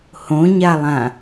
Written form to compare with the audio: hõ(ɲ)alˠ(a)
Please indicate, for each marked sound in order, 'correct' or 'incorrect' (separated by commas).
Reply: correct, incorrect